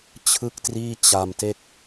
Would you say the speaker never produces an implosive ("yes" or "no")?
yes